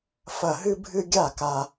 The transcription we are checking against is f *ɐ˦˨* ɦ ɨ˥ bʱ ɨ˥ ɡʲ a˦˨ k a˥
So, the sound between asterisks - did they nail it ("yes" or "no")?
yes